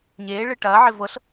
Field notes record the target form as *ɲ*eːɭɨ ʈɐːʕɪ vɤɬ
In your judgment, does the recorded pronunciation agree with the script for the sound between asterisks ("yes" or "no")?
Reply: yes